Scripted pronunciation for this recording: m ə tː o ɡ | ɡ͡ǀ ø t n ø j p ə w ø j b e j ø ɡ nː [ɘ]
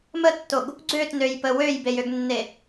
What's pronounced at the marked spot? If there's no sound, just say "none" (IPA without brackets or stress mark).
e